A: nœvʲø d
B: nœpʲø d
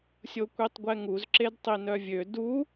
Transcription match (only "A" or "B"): A